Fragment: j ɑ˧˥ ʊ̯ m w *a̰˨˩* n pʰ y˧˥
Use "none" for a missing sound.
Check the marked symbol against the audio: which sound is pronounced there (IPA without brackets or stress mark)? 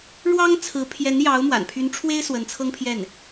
a̰˨˩